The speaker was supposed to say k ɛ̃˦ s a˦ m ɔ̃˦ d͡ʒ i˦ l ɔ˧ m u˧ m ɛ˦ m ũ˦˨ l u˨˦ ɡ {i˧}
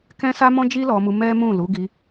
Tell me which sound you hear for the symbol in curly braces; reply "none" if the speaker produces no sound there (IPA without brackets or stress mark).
i˧